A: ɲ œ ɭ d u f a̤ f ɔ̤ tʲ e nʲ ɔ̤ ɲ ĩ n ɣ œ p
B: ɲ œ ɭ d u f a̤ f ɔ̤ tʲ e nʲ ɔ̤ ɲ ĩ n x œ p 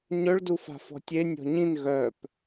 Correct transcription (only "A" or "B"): A